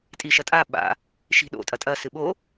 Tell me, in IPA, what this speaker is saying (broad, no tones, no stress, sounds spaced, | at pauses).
tʼ i ʃ ɐ tʼ a ɓ a̰ | ʃ i̤ ɗ o̰ tʼ ɐ tʼ ɐ s ɨ ɓ o